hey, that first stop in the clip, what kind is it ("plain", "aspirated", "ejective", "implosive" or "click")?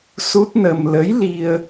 plain